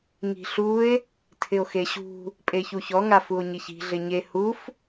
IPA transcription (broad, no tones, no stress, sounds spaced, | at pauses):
ŋ i̤ ɬ u e̯ | tʰ ɪ o̯ x e ɕ ṳ | pʼ e ç u ç ɔ ŋ a f u o̯ ɲ i ç i̤ ɮ ɪ ɲ e h u f